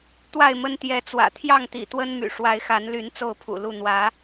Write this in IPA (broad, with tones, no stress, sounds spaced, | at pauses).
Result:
t̪ w a˥˨ ɪ̯ m ə˦ n t̪ j ɛ˨˦ t͡s w ä̰˨˩ t̪ʰ j ɑ˥˨ ŋ t̪ ḭ˨˩ t̪ w ə˦ n m y̰˨˩ ʂ w a˨˦ ɪ̯ x a˨˦ n l y˨˦ n t͡s o˥˨ ʊ̯ pʰ ṵ˨˩ l u˥˨ n̪ w ä˨˦